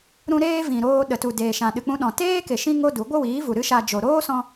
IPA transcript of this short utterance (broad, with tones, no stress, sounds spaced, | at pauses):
ɾ ũ˧ ɾ eː˦ v ĩ˨ ɾ oː˧ ɗ ə˨ t u˨ d eː˨ ʃ ã˨ ɗ ɨ˨ k͡p ũ˧ ɗ ɔ̃˨ t eː˦ k e˨ ʃ ĩ˦ ŋ o˦ d u˨˦ ɡʷ ə˦ w iː˨˦ v u˨ ɾ ɨ˦ ʃ a˧ d͡ʒ o˨ ɾ oː˦ s ɔ̃˧